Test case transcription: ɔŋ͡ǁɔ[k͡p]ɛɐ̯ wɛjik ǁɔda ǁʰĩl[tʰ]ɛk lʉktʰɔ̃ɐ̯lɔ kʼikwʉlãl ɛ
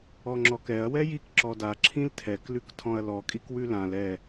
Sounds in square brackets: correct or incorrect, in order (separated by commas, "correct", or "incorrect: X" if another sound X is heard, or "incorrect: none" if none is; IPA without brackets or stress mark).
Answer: incorrect: k, correct